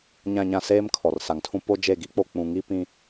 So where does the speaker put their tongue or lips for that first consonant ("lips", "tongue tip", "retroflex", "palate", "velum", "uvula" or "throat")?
palate